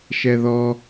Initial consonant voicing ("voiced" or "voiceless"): voiceless